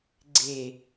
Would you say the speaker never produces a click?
no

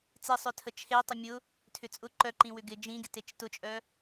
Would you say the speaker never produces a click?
no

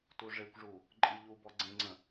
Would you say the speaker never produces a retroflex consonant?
no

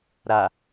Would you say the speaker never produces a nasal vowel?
yes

